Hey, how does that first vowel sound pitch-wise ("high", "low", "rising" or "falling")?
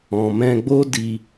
low